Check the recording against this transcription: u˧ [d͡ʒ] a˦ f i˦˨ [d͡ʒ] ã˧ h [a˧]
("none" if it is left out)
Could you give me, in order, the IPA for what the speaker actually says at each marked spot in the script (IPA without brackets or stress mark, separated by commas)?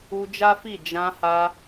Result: d͡ʒ, d͡ʒ, a˧